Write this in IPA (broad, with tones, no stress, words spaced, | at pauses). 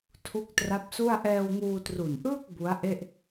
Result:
tʰu˦˥k̚tra˦˥p̚su˥˩a̯ ʔɛː˧wŋuː˧tru˨˩nʔɯː˥˩k̚ bu˦˥a̯ʔe˥˩ʔ